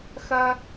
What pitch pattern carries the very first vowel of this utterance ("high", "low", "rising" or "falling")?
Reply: high